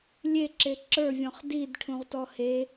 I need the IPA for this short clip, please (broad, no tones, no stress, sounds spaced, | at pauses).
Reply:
lʲ e ǁ e ǁ ə˞ vʲ ɔ̃ χ d i d ʈʰ ũ ʁ t ɔ h e